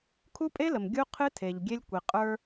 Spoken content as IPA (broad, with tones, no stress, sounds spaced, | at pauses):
kʰ u˦ pʼ e˦ l ə˨ m ɡʲ u˦ qʰ ɨ˦ tʰ e˨ ʎ ɡʲ e˦ lʲ kʷ i˨ qʼ ə˞˦